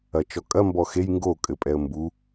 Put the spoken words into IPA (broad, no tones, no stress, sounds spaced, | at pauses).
ɐ t͡ʃ ɔ kʼ ɐ m b ɔ x e j ŋ ɡ o kʼ ɘ pʼ ɛ ə̯ m b u